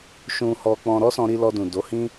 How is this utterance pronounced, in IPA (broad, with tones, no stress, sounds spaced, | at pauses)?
ʃ ũ˧ h ɔ˧ k͡p ɔ̃˧ ɾ ɔ˦ s ɔ̃˧ ɾ i˧ l ɔ˧ d ũ˨ d o˨˦ h ĩ˦